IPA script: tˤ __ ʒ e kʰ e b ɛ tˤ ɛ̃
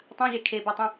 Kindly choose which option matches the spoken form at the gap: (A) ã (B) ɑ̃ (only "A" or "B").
A